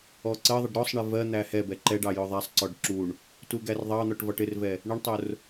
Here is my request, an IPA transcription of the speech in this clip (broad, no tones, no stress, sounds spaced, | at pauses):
ɔ ǀ ɜ ðˤ ɪ ɖ ɾ ɔ sˤ ɳ ɪ v ɜ n̪ æ h ɛ b ɛ ǃ ɛ ɖ ɑ j ʊ ðˤ æ sˤ ǀ ɔ ɖ ǁ u ɳ | t u ɡ æ r ðˤ ɑ n̪ ɔ ʈ v ɒ ʈ ɪ r v ɛ | ɳ ɪ ɳ tˤ ʊ r